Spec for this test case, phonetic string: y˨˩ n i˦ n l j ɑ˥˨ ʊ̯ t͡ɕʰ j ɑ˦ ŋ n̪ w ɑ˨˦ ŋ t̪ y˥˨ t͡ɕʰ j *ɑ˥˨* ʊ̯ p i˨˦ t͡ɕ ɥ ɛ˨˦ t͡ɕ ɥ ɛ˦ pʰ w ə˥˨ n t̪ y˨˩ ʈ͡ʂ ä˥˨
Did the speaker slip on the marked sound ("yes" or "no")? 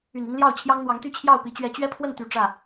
no